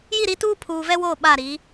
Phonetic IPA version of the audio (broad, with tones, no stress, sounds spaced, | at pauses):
j i˦˨ ɾ i˦ t uː˦ pʰ uː˨ v ɛ˦ w oː˦˨ ɓ a˦˨ ɾ i˨˦